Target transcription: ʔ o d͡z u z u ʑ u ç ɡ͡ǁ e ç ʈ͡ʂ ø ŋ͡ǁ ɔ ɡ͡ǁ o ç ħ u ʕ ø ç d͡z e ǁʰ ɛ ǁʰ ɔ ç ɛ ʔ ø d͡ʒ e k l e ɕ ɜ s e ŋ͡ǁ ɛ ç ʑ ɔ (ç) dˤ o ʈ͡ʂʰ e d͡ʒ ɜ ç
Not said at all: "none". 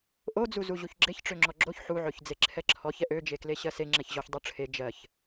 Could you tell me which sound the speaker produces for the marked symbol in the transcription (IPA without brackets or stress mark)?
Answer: ç